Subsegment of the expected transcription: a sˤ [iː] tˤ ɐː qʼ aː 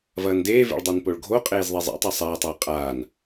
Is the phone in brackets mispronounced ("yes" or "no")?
yes